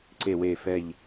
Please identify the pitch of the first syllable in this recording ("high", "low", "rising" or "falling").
low